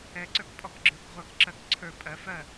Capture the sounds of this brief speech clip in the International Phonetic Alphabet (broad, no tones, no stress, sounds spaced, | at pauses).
ɛ ǀ ə˞ k pʼ ɔ k ɡ͡ǁ ə˞ k ʁʷ ɜ k ǁ ɜ k ǀʰ ə˞ pʼ ɜ f ɜ